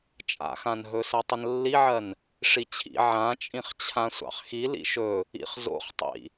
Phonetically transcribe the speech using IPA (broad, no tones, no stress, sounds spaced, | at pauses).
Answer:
t͡ʃʼ a̰ x ã n ɦ ɵ s ɜ tˤ ə n lː i ʕ ɜ n | ʂ i t͡ɕʰ ḭ ʕ ã t͡ʃʼ ĩ χ t͡ɕʰ ã sʷ ɑ̰ χ x i l ḭ ʃ ɵ | ḭ χ z o̰ χ tˤ ḭ